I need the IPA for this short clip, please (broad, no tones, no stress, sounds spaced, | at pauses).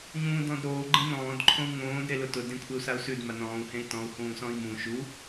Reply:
ɲ ũː d ɔ̃ d ɾ oː ɡ͡ǃ ẽ n ɔ̃ː d ǃʰ õ u̯ ŋ õː d ɾ e l ʊ t ʊ d ẽ kʷʰ e u̯ s a u̯ s ʉ d m a n ɔ̃ː u̯ h ẽ i̯ t ɔ̃ u̯ h ũː s ɔ̃ i̯ m ũ ʃ u